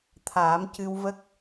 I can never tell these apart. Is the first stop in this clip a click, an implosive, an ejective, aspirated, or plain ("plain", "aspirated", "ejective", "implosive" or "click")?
aspirated